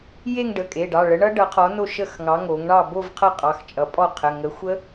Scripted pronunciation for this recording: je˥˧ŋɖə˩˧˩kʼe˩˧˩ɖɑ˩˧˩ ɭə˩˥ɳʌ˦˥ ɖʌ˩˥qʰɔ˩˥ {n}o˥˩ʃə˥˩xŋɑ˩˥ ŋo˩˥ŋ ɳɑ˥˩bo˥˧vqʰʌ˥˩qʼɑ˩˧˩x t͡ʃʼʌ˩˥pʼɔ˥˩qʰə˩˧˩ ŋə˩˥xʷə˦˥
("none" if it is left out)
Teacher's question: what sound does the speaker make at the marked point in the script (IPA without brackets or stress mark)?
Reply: n